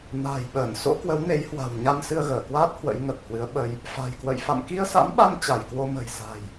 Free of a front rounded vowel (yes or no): yes